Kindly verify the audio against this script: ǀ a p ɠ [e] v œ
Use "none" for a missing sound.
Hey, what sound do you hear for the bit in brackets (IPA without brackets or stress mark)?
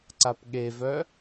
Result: e